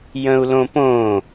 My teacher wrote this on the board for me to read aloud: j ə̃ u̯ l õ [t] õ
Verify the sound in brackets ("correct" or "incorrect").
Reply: incorrect